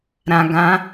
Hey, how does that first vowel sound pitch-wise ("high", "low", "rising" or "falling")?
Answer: low